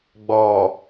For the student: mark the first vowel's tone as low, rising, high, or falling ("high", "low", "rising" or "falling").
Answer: low